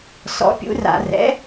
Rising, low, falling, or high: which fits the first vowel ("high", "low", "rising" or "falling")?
rising